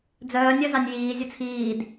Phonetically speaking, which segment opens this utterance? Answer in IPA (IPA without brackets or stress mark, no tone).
d͡z